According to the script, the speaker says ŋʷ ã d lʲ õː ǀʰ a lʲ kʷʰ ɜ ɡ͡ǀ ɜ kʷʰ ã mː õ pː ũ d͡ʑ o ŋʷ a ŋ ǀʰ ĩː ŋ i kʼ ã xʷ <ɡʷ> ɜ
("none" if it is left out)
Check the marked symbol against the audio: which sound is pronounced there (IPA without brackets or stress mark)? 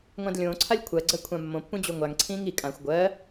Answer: ɡʷ